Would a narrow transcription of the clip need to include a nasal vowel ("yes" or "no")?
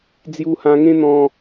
yes